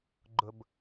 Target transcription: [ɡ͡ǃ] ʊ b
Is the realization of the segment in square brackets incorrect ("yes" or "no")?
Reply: no